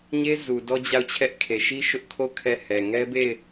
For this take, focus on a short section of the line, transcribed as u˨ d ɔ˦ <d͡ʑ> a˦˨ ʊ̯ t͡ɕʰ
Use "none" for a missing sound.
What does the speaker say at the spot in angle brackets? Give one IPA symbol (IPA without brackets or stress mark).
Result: d͡ʑ